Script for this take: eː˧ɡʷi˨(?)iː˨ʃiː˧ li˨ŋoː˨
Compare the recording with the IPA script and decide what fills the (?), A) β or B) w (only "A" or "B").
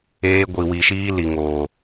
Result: B